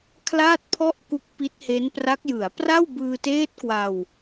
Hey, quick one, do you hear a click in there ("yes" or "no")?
no